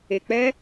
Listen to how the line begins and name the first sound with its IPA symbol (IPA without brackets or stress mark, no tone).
e